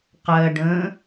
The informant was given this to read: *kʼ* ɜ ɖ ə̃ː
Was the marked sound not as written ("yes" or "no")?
yes